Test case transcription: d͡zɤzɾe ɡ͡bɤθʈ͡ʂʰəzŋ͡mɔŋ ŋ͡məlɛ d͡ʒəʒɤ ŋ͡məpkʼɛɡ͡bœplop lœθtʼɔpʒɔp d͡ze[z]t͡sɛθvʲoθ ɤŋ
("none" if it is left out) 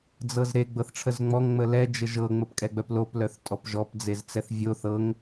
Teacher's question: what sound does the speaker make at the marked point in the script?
z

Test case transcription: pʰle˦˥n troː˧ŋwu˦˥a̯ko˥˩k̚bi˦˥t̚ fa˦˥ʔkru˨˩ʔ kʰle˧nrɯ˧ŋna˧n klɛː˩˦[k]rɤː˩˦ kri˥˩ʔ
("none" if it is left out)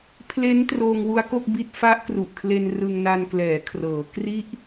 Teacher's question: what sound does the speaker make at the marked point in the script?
kʰ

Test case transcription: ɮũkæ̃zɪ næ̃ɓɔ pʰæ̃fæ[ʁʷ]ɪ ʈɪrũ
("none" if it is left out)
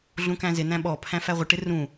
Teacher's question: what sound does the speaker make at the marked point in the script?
ʁʷ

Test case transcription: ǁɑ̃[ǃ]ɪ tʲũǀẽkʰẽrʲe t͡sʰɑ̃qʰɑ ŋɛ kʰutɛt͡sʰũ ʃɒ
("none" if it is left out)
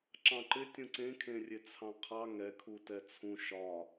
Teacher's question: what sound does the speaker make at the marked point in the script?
ǃ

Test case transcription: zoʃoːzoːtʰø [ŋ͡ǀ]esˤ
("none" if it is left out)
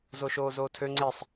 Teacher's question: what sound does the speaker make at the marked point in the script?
ŋ͡ǀ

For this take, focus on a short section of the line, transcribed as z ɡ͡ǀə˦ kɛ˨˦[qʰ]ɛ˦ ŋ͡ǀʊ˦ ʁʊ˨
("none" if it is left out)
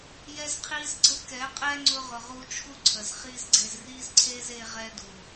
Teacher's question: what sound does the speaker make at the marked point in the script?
qʼ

